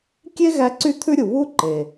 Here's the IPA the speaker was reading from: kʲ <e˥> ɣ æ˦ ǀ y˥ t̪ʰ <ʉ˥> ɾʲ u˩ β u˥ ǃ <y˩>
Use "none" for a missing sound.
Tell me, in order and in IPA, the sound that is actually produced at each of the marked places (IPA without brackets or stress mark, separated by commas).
e˥, ʉ˥, e˩